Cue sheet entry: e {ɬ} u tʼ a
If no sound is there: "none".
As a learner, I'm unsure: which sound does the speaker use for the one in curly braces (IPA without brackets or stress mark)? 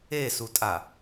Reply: s